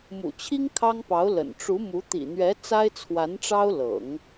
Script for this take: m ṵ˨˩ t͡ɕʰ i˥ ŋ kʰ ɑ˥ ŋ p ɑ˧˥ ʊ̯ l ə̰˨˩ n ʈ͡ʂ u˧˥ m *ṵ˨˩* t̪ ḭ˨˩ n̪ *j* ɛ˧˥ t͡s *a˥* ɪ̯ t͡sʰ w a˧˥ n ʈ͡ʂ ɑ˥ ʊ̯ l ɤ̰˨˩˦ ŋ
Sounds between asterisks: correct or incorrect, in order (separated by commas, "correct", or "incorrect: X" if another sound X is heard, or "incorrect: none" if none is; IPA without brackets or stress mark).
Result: incorrect: u˧˥, incorrect: ɥ, correct